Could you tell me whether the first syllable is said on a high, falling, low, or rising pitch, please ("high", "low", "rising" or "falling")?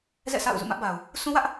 falling